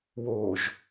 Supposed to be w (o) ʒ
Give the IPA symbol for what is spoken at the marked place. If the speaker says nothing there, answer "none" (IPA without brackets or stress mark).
o